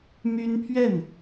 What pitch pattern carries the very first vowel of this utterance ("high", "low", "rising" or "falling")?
high